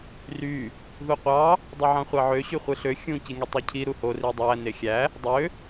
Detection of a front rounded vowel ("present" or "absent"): present